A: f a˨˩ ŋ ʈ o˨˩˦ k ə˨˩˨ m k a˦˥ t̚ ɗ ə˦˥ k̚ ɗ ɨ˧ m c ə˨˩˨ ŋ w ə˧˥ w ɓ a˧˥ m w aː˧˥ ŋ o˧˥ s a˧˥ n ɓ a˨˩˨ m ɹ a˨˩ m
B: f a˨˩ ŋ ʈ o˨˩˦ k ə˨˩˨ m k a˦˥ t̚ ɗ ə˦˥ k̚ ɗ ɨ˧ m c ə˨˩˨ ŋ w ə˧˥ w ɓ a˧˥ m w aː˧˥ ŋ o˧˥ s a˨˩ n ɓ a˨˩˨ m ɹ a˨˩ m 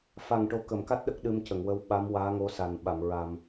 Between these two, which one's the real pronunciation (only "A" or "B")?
B